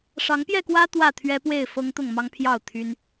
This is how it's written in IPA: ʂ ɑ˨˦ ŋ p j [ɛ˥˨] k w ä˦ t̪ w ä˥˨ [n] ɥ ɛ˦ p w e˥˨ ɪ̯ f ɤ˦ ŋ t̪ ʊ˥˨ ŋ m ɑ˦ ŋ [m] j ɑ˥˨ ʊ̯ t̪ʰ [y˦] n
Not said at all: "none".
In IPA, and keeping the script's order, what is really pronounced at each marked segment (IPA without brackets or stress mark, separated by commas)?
ɛ˥˨, t̪ʰ, pʰ, y˦